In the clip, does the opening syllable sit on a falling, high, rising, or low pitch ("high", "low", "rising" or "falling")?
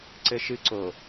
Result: low